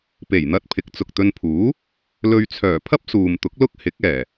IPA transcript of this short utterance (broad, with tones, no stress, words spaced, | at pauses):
pe˨˩jn̪ɐ˧t̚ pʰɪ˨˥k̚t͡sʊ˨k̚t̪ɵ˧npʰuː˨˥ | lɵ˧ɥt͡sʰœː˨˩ pʰɐ˥p̚suː˨mt̪ʊ˨˥k̚ lʊ˥k̚hɪ˨˥k̚ɛː˨˩